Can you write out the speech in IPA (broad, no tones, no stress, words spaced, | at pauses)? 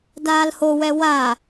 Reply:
daːlhowɛ wa